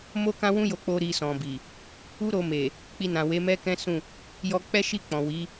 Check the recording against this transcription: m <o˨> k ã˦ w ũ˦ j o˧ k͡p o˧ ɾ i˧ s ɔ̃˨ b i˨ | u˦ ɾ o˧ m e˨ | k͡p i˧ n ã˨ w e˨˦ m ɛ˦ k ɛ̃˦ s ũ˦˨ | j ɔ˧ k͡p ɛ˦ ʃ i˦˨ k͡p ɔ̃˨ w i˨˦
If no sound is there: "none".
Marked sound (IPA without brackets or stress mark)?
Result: o˦